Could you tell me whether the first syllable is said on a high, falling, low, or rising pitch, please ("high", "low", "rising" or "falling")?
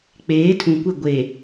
rising